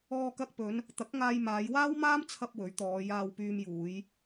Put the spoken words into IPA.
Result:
ɔː˧ k ɐ˧ k̚ p ɵ˨˧ n | t̪ ɐ˨˥ k̚ ŋ aː˧ j m aː˨˧ j w aː˥ w m aː˥ m t͡sʰ ɐ˧ p̚ w ɵ˨˥ ɥ t̪ ɔː˨˧ j aː˧ w p yː˧ m j uː˨˧ j

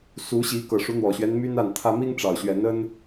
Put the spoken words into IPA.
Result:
s u˨˦ ɕ i˨˦ k ɤ˨˩ ʂ u˨˦ n̪ w ɔ˨˩ ɕ ɥ ɛ˦ n m y˦ n a˥˨ n t̪ʰ ä˦ m i˦ ŋ ʈ͡ʂ ɑ˨˩ ʊ̯ ɕ ɥ ɛ˨˦ n ə˦ n

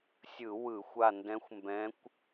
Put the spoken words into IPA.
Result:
sʲ ɯ˧˩˧ w ɯ˧˩˧ xʷ a˦˨ n d ɛ̃˧˥ xʷ m b ɛ̃˧˥ kʷ

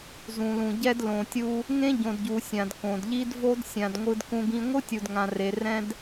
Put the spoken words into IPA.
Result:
z ũ˨ l ũ˨ ɟ ɛ˦ d l õ˨ tʲ u˦ | ŋ ẽ˦ ɟ õ˨ d ɟ u˨ sʲ ã˨ d k õ˨ d ʎ i˦ d v o˦ d sʲ ã˨ d ŋʷ ɯ˦ d k ũ˦ ɡ ĩ˦ ŋʷ ɯ˦ tʲ u˨ d ŋ ã˨ r e˨ r ɛ̃˦ d

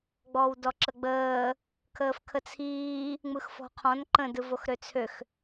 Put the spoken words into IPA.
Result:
ɡ͡b ɔ w d ɔ ǁ ə ɡ͡b əː | kʰ əː f kʰ ə t͡sʰ iː | ŋ͡m ɯ x f ɔ̤ qʰ ɔ̃ n ǃ ə̃ d ɯ v o x ɾ ø t͡sʰ ø x

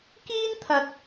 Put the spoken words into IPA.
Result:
k iː˥ n t̪ʰ ɐ˨ t̚

